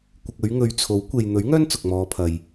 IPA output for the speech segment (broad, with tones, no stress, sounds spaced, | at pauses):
kʷ ɪ˨ k̚ ɵ˨˧ ɥ ŋ ɵ˨ ɥ t͡sʰ o˨˥ w kʷ e˨ j n̪ ɵ˨˥ ɥ ŋ œː˥ n t͡s ʊ˨ k̚ m ɔː˨˧ pʰ ɐ˨ j